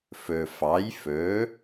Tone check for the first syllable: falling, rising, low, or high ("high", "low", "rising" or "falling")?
low